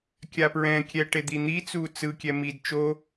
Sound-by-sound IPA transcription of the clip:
kʲ a p ɹ ɛ̃ kʲ ɛ ʈ e d̪ i n̪ i t͡s u t͡s ɯ kʲ ɛ m i d t͡ʃ o

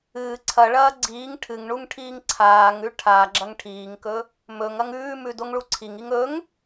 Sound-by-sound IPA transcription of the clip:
ɨː ǀʰ ɐ ɭ ɐː ɡ͡ǀ iː ŋ ʈʰ ɨ ŋ ɳ u ŋ ʈʰ iː ŋ ǀʰ aː ŋ ʉ ʈʰ a ɡ͡ǁ ɐ ŋ ʈʰ iː ŋ k ɵ | m ɵ ŋ ɐ ŋ ʉː m ʉ d o ŋ ɭ u ǀʰ i ŋ i ŋ ɵ ŋ

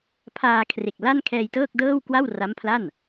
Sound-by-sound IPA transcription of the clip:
pʰ aː˧ kʰ r e˨˩ k̚ l a˥˩ n kʰ ɛː˧ j t ɤː˥˩ k̚ d ɤː˥˩ w k w a˥˩ w r a˦˥ m pʰ l a˥˩ n

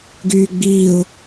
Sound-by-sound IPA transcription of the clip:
ɡ yː ɡ͡b iː ʊ̯

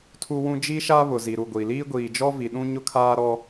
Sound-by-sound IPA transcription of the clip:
tʰ u˦ w ũ˦ d͡ʒ i˦ ʃ a˦ β ʊ˨ z i˨ ɾ u˦˨ ɡʷ i˨ l iː˦ ɡʷ iː˨ d͡ʒ ɔ˦ v i˨ ɗ ũ˦ ɲ ʊ˦ kʰ aː˦ ɾ ɔ˦

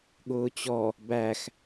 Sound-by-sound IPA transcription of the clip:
ɠ ʊː t͡ɕ ɔ | b æ x

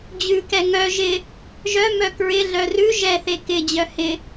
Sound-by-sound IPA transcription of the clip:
d͡ʑ ʉ k ɛ ŋ œ ʒ ɪ | ʒ œ m œ k ɹ ɪ ɮ œ r ʉ ʒ ɛ θ e k ɪ d͡ʑ œ h ɪ

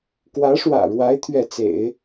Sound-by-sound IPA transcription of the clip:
k w ä˧˥ ʂ w ä̰˨˩ ɻ w a˧˥ ɪ̯ t̪ʰ ɥ ɛ˥˩ t͡s ḛ˨˩˦ ɪ̯

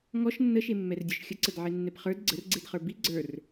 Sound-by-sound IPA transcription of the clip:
ŋ ɔ ʃ nː ə ʃ e mː ɛ r dʲ ə˞ ʃ xʲ ə ǀ ə d ʕ e nː ɛ p χ ə˞ d ɡ͡ǀ ə r ɡ͡ǀ e d χ ə˞ b i ɡ͡ǀ ə˞ r

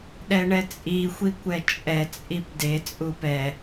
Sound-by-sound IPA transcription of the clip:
ɗ ɛ ɳ ɛ t͡sʼ i xʷ i kʷ ɛ t͡ʃʼ ɛ t͡sʼ i p d e t͡sʼ u p ɛ

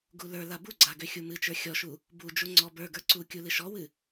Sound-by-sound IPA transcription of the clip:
ɡ u l ə˞ l a b u ɡ͡ǀ a ɡ ø xʲ u m ɨ t͡ʃ ə˞ xʲ ɔ ʃ u | b u d͡ʒ u ŋ͡ǀ ɔ b ə˞ ɡ ə˞ ǀ u kʲ u l ɨ ʃ ɔ w ɨ

